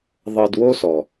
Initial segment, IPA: ðˤ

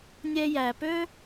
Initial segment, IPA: nʲ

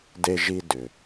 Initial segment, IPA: d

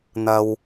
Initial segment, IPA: n̪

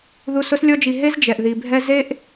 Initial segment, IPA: ð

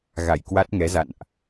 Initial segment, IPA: ɣ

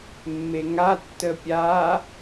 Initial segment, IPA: mː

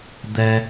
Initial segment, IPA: d̪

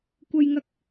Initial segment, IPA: kʷ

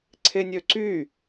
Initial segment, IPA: ǀʰ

